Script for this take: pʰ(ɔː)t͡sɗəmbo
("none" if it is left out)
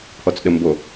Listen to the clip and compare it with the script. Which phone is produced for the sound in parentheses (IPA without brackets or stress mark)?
ɔ